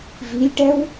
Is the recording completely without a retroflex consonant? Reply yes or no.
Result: no